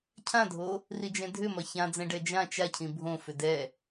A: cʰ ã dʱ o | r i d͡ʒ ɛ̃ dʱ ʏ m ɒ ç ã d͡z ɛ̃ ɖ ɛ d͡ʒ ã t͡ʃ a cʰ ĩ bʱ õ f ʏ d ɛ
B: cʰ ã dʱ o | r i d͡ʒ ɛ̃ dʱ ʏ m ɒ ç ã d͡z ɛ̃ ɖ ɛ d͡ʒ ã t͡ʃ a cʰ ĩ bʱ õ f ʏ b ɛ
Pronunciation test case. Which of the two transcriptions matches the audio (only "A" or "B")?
A